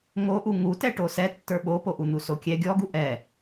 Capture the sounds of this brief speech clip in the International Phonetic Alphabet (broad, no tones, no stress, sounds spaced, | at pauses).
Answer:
ŋ o ʔ u ŋ u t ɛ ʈ o s ɛ tː ə˞ ɓ o p o ʔ u n̪ u s o kʲ ɛ ɡʲ ɔ ɡ u ʔ ɛ